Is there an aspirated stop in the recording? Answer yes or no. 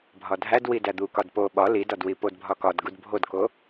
no